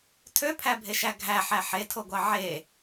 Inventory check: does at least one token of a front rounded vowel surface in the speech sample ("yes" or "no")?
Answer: yes